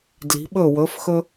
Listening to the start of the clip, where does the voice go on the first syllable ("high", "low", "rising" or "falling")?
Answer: rising